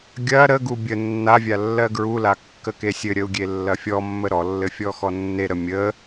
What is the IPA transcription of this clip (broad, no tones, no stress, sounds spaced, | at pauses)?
ɡʲ ɐ ɾ ə ɡ u bʲ ə nː a vʲ a lː ɜ ɡ ɹ u l a kː ə k e sʲ ɘ ɾʲ ə u̯ ɡʲ e lː ɐ fʲ ɔ mː ə ɾ ɔ lː ɘ fʲ ɔ x ɔ nː e ɾ ə mʲ ə